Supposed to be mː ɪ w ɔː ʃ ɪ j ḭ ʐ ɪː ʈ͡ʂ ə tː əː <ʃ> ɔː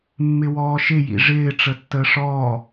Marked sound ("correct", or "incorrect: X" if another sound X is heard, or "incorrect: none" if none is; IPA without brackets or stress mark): incorrect: ʂ